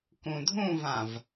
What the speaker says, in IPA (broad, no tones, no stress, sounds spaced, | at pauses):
k ũ dʱ ũ v ã v